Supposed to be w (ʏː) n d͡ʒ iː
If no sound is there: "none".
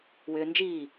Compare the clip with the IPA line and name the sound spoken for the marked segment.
ʏː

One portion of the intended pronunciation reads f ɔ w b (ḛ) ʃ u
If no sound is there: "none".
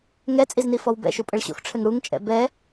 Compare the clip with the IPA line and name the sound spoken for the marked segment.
ɛ̰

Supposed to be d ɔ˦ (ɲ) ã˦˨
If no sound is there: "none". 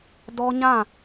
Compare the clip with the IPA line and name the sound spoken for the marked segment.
ɲ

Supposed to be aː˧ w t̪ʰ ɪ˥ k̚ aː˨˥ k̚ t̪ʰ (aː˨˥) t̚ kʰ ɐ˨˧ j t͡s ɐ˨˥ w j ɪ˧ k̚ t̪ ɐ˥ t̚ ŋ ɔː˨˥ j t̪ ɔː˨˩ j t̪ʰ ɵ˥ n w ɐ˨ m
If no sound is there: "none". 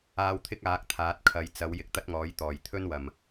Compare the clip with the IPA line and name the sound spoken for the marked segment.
aː˨˥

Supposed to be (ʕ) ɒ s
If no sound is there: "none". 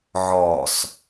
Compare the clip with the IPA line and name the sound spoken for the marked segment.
ʕ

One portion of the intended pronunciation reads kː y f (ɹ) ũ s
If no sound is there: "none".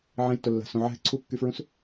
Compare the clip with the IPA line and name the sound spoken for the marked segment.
ɹ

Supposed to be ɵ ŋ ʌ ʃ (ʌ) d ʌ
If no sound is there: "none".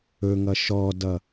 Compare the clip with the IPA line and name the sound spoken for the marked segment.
ɔ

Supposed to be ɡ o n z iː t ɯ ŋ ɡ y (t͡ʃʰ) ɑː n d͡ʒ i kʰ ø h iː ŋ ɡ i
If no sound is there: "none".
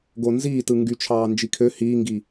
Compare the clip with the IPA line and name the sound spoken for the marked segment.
t͡ʃʰ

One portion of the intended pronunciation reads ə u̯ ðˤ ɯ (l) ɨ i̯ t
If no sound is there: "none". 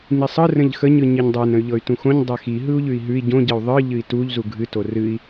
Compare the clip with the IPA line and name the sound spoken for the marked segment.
ʎ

